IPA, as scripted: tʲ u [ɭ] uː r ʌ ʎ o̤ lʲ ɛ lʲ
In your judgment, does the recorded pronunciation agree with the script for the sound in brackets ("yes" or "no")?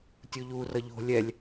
no